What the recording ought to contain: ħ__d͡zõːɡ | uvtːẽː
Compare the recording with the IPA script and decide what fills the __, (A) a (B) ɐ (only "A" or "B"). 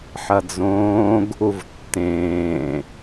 B